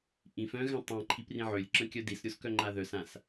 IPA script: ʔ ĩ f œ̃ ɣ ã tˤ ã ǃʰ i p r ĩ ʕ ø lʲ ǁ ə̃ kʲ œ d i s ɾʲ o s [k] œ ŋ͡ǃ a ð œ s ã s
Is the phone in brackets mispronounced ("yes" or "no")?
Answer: no